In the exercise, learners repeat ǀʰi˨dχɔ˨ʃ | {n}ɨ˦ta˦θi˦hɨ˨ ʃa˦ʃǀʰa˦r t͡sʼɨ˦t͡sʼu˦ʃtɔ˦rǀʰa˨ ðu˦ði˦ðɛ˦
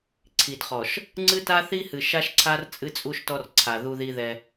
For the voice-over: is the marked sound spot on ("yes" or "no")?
no